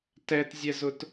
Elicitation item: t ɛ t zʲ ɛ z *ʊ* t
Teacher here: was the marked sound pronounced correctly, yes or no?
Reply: yes